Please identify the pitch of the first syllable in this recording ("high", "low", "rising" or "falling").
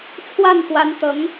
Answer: falling